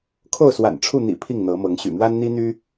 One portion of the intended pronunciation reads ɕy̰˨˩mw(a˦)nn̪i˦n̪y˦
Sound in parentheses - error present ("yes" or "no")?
no